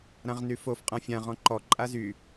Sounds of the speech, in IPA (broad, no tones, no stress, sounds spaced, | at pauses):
ɾ ã ʁ n y f o f qʼ ã fʲ ã ʁ ɔ̃ ǃ ɔ ǃʼ a z y